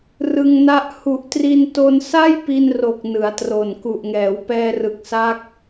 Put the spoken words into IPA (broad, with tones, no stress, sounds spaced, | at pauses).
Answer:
r ɯ˧ ŋ n a˦˥ ʔ h u˨˩ ʔ t r i˧ n t o˧ n s a˥˩ j p i˧ n r o˨˩ k̚ n ɯ˩˦ a̯ t r o˨˩ n k u˨˩ ʔ ŋ ɛː˩˦ w p ɛː˧ r ɯ˨˩ k̚ s a˦˥ k̚